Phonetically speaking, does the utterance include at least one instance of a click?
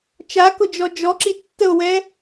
yes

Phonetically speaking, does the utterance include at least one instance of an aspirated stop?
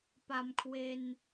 yes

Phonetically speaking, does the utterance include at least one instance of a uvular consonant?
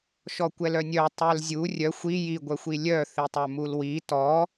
no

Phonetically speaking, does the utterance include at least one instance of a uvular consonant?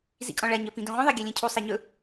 yes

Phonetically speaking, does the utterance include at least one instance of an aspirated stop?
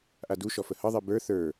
no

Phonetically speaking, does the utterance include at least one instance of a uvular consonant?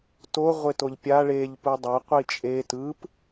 yes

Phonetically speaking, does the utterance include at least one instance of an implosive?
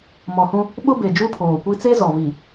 yes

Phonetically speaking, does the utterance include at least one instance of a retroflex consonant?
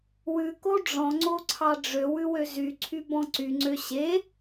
yes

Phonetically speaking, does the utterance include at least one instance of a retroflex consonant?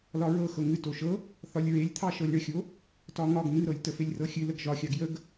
yes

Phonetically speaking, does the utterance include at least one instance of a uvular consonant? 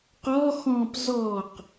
yes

